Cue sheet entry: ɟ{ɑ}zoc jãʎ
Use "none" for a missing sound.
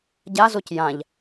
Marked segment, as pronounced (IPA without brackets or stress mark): a